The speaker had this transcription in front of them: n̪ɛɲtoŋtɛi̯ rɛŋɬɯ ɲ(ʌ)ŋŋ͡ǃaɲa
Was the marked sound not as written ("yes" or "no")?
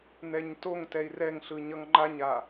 no